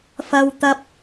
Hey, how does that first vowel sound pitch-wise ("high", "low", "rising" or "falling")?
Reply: high